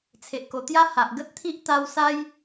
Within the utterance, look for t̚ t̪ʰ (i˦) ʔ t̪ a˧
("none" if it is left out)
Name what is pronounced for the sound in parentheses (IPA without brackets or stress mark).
i˦